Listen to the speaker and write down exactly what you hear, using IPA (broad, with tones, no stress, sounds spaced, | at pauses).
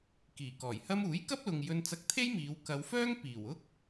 k iː˨˩ k ɔː˨˩ j h ɐ˥ m uː˨˥ j k ɐ˥ p̚ l ʊ˨ ŋ j ɵ˧ n t͡s ɐ˧ k̚ t̪ʰ e˥ j m iː˨˧ w k ɐ˨˧ w f œː˥ ŋ p iː˨˩ w ʊ˥ k̚